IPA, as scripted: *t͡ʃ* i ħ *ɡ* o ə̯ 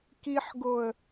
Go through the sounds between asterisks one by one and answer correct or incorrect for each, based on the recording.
incorrect: k, correct

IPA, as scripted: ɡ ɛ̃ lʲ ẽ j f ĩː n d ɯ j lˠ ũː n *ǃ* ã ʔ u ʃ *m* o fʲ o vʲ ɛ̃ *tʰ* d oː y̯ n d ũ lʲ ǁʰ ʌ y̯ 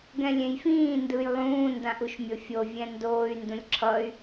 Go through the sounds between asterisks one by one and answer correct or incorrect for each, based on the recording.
incorrect: d, incorrect: mʲ, incorrect: n

